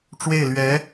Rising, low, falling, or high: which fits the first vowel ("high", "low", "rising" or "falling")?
falling